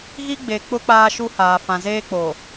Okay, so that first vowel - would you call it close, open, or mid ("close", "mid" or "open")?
close